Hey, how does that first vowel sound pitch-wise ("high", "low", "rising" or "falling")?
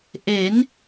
rising